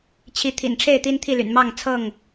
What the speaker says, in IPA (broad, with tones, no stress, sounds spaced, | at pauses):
t͡ɕʰ i˨˦ t̪ʰ ḭ˨˩ n ʈ͡ʂʰ e˥˨ ɪ̯ t̪ i˦ n t̪ʰ i˥˨ l y̰˨˩ n m ɑ˥˨ ŋ t͡sʰ ɤ˥˨ ŋ